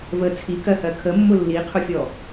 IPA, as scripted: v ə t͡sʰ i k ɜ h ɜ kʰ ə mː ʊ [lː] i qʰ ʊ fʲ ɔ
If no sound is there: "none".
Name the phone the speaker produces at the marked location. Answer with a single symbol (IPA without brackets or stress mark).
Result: lː